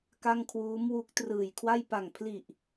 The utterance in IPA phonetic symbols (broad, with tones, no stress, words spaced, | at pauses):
ka˥˩ŋ kʰwuː˦˥mwu˦˥k̚ trɯː˨˩jkʰwa˥˩j pa˨˩ŋpʰli˨˩ʔ